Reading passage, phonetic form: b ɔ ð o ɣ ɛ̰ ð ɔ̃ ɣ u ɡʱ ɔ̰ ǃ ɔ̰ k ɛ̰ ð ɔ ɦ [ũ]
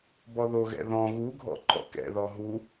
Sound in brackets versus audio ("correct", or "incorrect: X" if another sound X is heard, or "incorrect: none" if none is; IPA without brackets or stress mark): incorrect: u